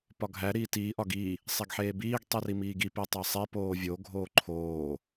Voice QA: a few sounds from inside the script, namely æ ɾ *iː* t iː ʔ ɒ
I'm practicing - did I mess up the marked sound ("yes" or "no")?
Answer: no